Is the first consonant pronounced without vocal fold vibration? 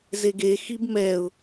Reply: no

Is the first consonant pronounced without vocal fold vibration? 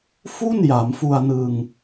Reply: yes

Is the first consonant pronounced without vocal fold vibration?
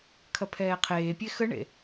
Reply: yes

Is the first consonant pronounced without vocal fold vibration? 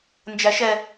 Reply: no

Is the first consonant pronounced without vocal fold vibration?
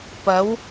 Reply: yes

